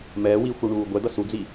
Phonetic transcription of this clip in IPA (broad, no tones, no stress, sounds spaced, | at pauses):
m ɛː w iː xʷ o ɳ uː ɡʷ ɛ d̪ ʌ s u d͡z i